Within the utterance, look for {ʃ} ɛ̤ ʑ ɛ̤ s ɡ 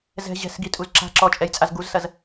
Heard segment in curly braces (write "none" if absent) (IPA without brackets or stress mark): z